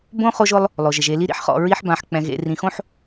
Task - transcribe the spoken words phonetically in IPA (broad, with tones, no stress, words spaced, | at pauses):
bõ˥χo˦ʒʊ˦lˠ | lˠo˩ʒ ɪ˩ʒe˨li˥ ɾḭ˥ħχɔ̰˨ ɹi˦ħbã˨ħ k͡pɛ̃˨ɣḛ˨ rĩ˨xõ˥ħ